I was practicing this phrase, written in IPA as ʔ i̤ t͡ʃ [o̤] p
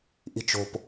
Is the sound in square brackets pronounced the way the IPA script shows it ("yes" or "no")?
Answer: yes